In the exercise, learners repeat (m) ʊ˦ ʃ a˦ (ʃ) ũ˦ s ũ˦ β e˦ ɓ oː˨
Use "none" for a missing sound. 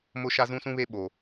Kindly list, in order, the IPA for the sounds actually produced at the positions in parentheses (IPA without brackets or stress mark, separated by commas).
m, z